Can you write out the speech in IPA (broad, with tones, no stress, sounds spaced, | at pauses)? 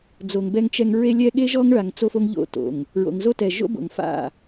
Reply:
d͡z o˨ ŋ b ɛ˦ ŋ t͡ʃ ɛ˦ ŋ ɹ e˦ lʲ ɛ˦ ɠ e˦ ʒ ɔ˦ ŋ ɭ a˨ ŋ t͡s o˦ f o˦ ŋ ʎ o̰˦˨ t o̰˨ ŋ | ɹ o̰˨ ŋ z o˦ t ɛ˨ ʒ o̰˦ b o̰˨ ŋ f a̰˦˨